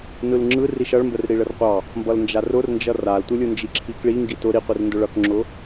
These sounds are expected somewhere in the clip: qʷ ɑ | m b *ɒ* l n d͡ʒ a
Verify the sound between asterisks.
incorrect: ʌ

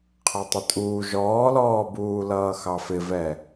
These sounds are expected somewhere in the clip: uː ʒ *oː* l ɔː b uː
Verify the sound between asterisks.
incorrect: ɔː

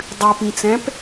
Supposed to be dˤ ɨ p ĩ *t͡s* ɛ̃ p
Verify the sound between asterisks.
correct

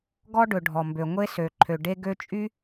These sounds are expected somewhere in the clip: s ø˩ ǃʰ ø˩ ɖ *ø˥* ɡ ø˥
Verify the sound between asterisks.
incorrect: e˥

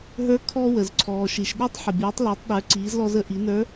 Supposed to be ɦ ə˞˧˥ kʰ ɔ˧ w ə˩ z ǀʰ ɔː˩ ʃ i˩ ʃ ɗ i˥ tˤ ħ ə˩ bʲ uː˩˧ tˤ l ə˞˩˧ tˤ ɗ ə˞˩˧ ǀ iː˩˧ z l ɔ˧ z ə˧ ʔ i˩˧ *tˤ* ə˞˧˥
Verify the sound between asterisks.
incorrect: n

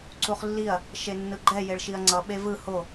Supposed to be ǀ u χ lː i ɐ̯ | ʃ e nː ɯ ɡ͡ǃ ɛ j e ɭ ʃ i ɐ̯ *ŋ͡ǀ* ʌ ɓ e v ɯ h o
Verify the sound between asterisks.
correct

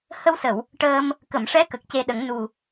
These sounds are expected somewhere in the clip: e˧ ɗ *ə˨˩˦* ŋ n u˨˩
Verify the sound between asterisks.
correct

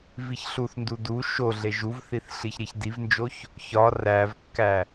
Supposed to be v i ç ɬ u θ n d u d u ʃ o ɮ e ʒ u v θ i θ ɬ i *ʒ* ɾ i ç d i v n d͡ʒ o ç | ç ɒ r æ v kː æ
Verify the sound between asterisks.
incorrect: ç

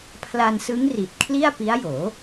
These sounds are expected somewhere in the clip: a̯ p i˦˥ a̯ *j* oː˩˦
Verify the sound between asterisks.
correct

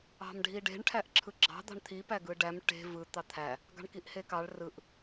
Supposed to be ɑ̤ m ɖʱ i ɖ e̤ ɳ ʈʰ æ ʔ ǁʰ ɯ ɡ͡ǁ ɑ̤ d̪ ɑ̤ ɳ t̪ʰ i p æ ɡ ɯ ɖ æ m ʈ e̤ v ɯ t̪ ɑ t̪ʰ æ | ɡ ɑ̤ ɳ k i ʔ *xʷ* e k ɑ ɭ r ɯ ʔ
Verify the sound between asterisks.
incorrect: h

